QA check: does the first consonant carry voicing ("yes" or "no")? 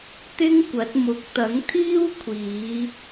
no